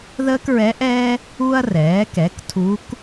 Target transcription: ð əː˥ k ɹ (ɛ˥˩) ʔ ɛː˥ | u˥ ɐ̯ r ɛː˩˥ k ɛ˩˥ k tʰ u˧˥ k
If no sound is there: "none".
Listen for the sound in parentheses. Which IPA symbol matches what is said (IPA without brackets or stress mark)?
ɛ˧˥